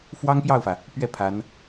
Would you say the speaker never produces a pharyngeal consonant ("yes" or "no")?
yes